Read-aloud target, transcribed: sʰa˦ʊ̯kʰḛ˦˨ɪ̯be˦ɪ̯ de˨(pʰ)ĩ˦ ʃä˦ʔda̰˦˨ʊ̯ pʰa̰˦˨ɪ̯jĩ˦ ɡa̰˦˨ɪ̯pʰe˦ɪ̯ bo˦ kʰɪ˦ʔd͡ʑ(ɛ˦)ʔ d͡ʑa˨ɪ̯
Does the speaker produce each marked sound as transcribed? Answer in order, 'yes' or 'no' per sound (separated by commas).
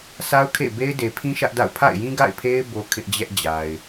yes, yes